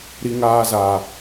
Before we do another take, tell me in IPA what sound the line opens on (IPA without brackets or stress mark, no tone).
ɾ